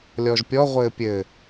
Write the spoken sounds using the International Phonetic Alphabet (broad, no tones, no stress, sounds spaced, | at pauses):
lʲ ɔ ʒ pʲ ɔ ʁʷ ɘː pʲ ɘ